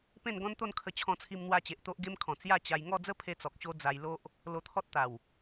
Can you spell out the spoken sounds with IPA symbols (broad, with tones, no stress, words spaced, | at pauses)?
pẽ˥˧nɡɔ̃˦nt̪o˥˧n kʰə˧ t͡ɕʰɔ̃˧t͡sʰi˧mn̪wa˧t͡ɕe˨ʔ t̪o˦ʔɡe˦mkʰɔ̃˨˩ t͡sja˥˧t͡ɕa˧j ŋɔ˥˧d͡zə˦pʰe˧ t͡sɔ˨k̚ɕo˦ d͡za˧j lo˦ʔ | lo˧t̪ʰɔ˦t̚t̪a˨˩w